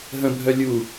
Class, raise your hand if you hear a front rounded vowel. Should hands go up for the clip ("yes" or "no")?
yes